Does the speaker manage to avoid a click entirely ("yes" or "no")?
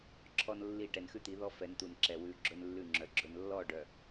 no